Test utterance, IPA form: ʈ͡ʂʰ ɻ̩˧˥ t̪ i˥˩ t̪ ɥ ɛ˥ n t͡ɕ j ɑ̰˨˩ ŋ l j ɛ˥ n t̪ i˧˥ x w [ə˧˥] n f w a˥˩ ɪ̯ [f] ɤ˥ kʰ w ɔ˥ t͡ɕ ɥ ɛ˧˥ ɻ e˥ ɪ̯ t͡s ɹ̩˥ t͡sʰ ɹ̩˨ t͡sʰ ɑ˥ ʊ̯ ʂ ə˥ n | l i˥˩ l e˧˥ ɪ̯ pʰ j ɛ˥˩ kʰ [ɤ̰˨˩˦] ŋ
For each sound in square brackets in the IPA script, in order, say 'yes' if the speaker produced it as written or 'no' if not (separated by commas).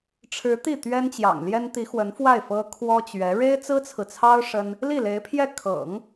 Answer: yes, yes, yes